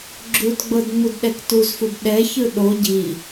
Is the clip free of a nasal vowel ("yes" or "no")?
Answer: yes